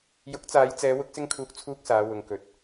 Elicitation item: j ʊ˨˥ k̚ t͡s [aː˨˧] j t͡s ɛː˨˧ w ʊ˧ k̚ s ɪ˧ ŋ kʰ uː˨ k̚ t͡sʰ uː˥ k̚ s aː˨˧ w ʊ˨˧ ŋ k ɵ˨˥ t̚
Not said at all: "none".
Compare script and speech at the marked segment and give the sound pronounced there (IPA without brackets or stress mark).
aː˨˧